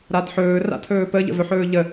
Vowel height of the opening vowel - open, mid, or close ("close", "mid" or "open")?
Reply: open